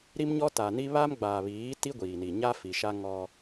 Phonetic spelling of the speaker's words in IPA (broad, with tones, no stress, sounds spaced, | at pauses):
ɾ i˦ m ɲ ɔ˦ t a˨ n i˦ β a˦ m ɡ͡b aː˨ β iː˨˦ t i˦ ɡʷ iː˨ n i˨ ɲ a˦ f i˨ ʃ a˦ ŋ ɔ˦